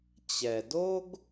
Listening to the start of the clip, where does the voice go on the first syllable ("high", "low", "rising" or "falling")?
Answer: low